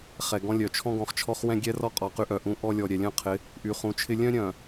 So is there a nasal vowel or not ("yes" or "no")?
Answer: yes